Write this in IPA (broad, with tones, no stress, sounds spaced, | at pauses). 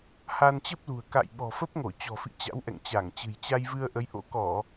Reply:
h a˧ n t͡ɕ ə˦˥ p̚ l ṳ˨˩ ə̯ k a̰˧˨ j ɓ ɔ̤˨˩ f ə˦˥ p̚ ŋ o˧˩ t͡ɕ ɔ̤˨˩ f ḭ˧˨ t͡ɕ a̰˧˥ w ʔ ɛ̰˧˨ ŋ t͡ɕ a˧˩ ŋ t͡ɕ ɨ̤˨˩ j t͡ɕ a˧ j v ɨ˧ ə̯ ʔ ə˨˦ j ʔ o̰˧˥ k ɔ˧˩˨